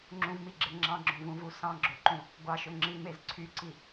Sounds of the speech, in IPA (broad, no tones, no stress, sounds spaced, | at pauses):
ŋ͡ǁ ũ v m i ɡ͡ǁ e ŋ͡ǁ ɑ̃ ɡ͡ǁ õ v ũ v u s ɑ̃ ɡ͡ǁ o ǃ ũ | ɡʷ ɑ ʃ ø ŋ͡ǁ i m e z ǀʰ y ǀ i